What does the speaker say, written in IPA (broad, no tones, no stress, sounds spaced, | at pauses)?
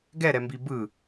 ɡ ɛ ɾ ɛ m b i b ɯ